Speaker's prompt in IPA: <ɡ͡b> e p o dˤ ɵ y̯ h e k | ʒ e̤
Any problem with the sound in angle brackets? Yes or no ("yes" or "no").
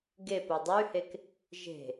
yes